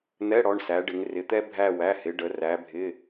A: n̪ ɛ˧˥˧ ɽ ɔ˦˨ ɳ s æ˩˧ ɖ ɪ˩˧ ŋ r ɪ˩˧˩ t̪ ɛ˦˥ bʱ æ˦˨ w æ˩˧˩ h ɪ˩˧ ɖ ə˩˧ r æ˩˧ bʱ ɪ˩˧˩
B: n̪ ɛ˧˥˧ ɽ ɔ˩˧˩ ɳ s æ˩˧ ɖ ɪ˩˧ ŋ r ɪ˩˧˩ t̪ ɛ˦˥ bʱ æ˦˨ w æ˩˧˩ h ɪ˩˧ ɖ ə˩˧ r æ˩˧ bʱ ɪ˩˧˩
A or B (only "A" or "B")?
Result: B